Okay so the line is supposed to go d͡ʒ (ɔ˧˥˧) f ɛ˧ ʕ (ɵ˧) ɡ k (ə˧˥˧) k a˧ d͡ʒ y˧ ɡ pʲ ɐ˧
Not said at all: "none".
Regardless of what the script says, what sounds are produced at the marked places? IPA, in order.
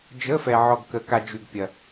ə˧˥˧, ɔ˧, ə˧

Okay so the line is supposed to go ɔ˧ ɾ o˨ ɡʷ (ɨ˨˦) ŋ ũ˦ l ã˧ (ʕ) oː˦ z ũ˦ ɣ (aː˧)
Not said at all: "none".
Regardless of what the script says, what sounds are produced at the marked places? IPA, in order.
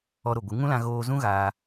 ɨ˨˦, ɣ, aː˧

